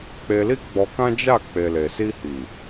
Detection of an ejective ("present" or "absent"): absent